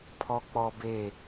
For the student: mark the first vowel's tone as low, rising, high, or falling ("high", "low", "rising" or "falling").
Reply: high